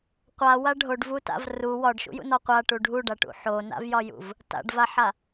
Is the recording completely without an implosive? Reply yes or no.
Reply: yes